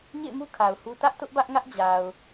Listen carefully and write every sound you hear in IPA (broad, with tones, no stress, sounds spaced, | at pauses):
ɲ ḛ˦˨ ɪ̯ m u˦ kʰ a˨ ʊ̯ h u˦ t ä˦ ʔ t ʊ˦ ʔ b ä˦ ʔ ŋ ä˦ ʔ d͡ʑ a˨ ʊ̯